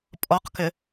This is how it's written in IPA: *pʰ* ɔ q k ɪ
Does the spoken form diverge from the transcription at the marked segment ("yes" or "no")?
yes